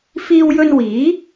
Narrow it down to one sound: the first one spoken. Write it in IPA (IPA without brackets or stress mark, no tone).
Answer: f